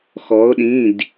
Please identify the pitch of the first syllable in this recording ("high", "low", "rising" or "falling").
rising